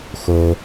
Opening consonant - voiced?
no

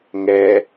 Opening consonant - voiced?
yes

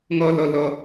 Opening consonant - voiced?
yes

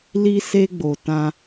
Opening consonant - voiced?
yes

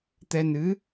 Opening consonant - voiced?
no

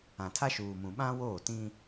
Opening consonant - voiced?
no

